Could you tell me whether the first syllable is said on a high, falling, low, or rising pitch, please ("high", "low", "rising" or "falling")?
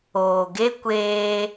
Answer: low